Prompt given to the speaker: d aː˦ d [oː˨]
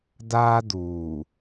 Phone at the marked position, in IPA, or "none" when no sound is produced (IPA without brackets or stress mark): uː˨